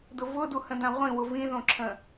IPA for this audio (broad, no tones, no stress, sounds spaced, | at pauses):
d ʊ v ʊ d u h ə̃ d ã ʁʷ ĩ w ʊ v ĩ ð õ ǁʰ ə̃